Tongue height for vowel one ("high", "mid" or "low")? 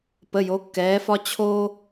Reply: mid